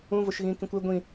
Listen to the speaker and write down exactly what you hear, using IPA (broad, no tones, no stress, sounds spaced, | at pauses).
ũ v o ʃ ɣ ĩː k ĩ kʷ ɪ ɡʷ ĩ